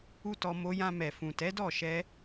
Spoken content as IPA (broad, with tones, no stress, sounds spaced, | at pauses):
u˦ t ɔ˧ m o˧ j ã˧ m ɛ˨ f ũ˨ t ɛ˨˦ d ɔ˦˨ ʃ ɛ˧